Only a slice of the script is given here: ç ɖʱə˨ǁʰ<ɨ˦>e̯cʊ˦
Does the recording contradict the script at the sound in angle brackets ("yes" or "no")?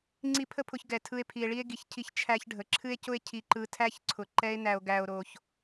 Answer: no